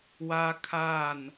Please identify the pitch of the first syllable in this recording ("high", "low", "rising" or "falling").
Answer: high